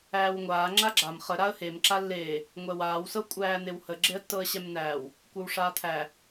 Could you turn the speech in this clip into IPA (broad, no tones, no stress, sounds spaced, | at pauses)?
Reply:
æː w ŋʷ aː ŋ͡ǁ a ɡ͡ǁ a m χ ə ɾ a ə̯ h e m ǁ a lː eː | ŋʷ ɛ w aː w s ɤ kʷʼ æː n̪ e w h ə ɡ͡ǁ e ə̯ tː ɤ ə̯ ɕ ɛ m n æː w | kʷ ɤ w ʂ aː t̪ʰ æ